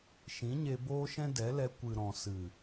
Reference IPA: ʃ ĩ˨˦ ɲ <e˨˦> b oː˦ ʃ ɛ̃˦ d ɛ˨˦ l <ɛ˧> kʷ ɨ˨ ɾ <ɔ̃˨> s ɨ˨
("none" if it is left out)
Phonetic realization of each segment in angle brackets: e˧, ɛ˧, ɔ̃˨

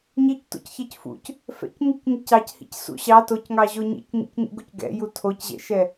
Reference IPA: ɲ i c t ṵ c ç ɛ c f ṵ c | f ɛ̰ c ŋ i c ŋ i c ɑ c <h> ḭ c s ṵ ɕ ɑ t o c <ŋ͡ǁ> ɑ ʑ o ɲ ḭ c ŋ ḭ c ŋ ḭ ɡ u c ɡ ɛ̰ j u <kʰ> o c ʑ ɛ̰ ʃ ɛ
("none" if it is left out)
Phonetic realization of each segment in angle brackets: h, ŋ, tʰ

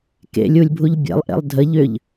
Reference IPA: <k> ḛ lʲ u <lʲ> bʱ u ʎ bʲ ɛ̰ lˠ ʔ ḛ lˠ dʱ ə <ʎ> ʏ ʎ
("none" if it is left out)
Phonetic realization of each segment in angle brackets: k, lʲ, ʎ

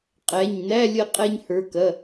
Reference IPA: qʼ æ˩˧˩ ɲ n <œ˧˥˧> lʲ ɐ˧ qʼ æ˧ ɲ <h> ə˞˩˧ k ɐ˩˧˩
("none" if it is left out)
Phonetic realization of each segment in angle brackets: æ˧˥˧, h

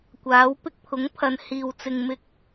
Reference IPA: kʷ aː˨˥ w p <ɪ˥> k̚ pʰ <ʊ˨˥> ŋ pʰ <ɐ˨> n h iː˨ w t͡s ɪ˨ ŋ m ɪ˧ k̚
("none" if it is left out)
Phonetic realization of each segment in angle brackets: ɪ˥, ʊ˨˥, ɐ˨

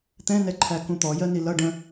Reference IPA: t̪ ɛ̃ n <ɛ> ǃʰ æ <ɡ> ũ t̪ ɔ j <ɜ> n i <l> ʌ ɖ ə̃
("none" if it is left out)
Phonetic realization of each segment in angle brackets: ɛ, k, ɜ, l

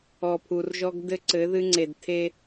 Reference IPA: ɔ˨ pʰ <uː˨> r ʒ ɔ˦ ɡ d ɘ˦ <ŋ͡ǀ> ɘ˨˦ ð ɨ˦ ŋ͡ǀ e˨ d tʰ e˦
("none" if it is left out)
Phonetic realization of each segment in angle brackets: u˨, ǀ

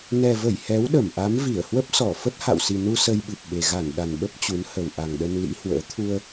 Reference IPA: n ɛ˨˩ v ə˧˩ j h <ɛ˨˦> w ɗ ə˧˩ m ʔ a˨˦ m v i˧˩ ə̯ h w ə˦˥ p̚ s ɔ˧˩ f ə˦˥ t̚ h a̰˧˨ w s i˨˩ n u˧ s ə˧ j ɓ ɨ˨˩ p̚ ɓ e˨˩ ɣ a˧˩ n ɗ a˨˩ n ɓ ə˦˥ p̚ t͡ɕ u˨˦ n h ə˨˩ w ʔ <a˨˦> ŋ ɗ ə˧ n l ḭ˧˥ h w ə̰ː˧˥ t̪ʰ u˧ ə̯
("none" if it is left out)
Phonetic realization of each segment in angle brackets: ɛ˨˦, a˨˩

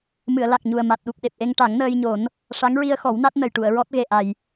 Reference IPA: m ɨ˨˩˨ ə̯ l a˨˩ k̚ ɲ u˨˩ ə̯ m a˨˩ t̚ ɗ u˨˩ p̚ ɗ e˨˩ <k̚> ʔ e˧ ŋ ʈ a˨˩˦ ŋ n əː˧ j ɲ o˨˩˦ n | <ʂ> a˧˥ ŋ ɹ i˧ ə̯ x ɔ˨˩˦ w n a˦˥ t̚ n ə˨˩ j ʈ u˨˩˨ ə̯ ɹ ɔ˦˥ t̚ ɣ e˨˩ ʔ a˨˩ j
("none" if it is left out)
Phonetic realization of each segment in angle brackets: p̚, ʂ

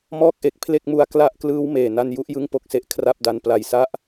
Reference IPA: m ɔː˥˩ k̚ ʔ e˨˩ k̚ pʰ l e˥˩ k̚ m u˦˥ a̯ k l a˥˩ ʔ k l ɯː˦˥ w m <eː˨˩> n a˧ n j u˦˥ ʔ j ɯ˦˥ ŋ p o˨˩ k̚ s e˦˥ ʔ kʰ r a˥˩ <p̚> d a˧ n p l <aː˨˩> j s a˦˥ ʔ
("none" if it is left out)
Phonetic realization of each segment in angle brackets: eː˨˩, p̚, a˨˩

